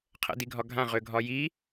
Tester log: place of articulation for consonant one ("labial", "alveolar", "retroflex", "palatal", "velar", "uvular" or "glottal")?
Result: uvular